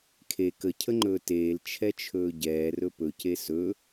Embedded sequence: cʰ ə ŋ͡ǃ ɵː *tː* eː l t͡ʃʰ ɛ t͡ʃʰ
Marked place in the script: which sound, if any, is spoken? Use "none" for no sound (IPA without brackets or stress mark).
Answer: t